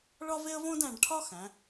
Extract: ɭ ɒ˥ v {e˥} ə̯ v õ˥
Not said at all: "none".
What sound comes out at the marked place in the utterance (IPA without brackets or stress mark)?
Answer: e˥